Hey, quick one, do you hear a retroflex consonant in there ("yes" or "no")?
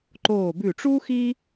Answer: yes